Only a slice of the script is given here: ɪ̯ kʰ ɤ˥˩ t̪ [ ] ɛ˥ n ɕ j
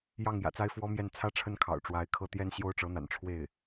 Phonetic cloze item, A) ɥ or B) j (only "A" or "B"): B